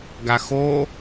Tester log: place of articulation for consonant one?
velar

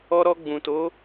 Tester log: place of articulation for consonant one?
alveolar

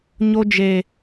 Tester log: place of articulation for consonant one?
palatal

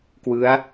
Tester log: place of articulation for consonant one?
velar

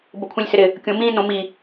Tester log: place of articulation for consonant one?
labial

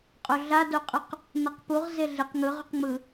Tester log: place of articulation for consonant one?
uvular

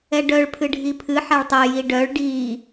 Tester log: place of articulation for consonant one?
retroflex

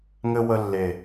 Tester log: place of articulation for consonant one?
velar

